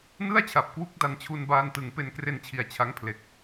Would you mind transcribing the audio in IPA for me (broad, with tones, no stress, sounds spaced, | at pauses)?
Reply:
n ɯ˥˩ a̯ t͡ɕʰ a˨˩ p̚ k w u˦˥ k̚ d a˧ n t͡ɕʰ u˧ n b aː˧ n t ɯ˩˦ ŋ p e˧ n k r e˧ n t͡ɕʰ i˩˦ a̯ t͡ɕʰ a˦˥ ŋ pʰ l e˨˩ k̚